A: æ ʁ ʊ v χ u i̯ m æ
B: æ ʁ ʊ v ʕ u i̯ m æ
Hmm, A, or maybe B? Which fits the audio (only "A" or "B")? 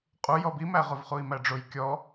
A